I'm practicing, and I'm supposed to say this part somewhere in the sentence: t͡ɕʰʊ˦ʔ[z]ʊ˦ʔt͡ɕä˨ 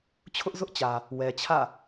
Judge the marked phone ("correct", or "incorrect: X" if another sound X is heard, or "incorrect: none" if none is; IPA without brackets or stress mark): correct